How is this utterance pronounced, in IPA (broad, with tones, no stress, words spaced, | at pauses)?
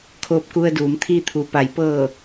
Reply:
kʰoː˧p̚ku˧ə̯duː˩˧mt̪ʰiː˧ t̪ʰu˩pa˩˧jpɤː˧˩